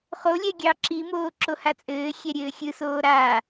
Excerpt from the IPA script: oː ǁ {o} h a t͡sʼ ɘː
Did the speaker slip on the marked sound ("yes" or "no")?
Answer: no